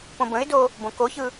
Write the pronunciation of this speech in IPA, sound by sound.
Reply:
p õ b ə̃ ɪ̯ d o | b õ k o ç ɯ

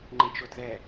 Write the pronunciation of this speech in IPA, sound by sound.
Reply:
ŋ͡ǃ ẽ t͡ʃ o d ð ɛ

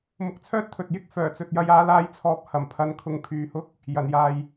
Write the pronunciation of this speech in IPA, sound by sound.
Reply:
m ʊ˨˥ k̚ t͡sʰ œː˥ t̚ t̪ʰ ɵ˨ t̚ j ɪ˥ k̚ f œː˨˩ t͡s ɵ˨ t̚ j ɐ˧ j aː˧ l aː˧ j t͡sʰ ɔː˨˥ p̚ h ɐ˨˩ m pʰ ɐ˨˧ n kʰ ʊ˨˧ ŋ pʰ yː˨ h ʊ˥ k̚ | j ɐ˨˩ n j aː˨ j

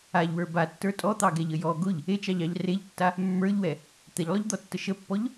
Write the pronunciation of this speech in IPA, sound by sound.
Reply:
a ʎ w ə˞ b a tː ə˞ tʼ ɔ t̪ ɑ ɡ ɛ ʎ ə j ɔ ɡ ʊ ʎ | e t͡ʃ ɑ ʎ ɑ ʎ r e ʎ tː a | mː ə˞ ʎ w ɛ | t̪ ɛ ʎ lˠ ʊ ʎ d̪ ɔ tː ə ʃ ə pː ɔ ʎ

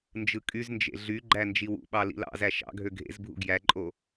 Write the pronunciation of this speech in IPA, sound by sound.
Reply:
n d͡ʒ ɯ kʼ y z n d͡ʒ ḛ ɮ y ɡ͡ǃ æ n d͡ʒ i w ṵ ɓ ɑ l ḭ l ɑ̰ z æ ʃ ɑ̰ ɡʱ ø ɡʱ ḛ z bʱ ṵ ɡ j æ ǃʼ o

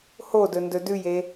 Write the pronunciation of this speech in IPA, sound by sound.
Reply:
h o d ɵ n d ɵ d ʉ j e

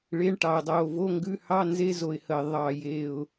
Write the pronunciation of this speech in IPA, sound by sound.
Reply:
ɭ e˧˥˧ ɳ ʈ ɑ˨˩ ʊ̯ dˤ oː˨˩ v o˧˥˧ ŋ ɡ ʉ˧˥˧ h ɑ˧˥˧ n z e˧˥˧ z o˨˩ ɪ̯ h ə˨˩ ɪ̯ ðˤ ɑ˨˩ j e˨˩ ʊ̯

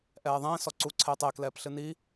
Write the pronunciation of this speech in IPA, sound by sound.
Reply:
ʔ ɛː ðˤ ẽː s ɔ ǀ u ǀʰ eː tˤ e k l ɛː p ɬ ɨ n i

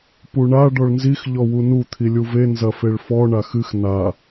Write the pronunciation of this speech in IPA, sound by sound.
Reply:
p u ɳ a ɖ ɔ ɭ n z i x ʎ ɔ w u n u t̪ʰ i lʲ u v e n z ɐ f e ɭ f ɔ ɳ a x ɨ x n a

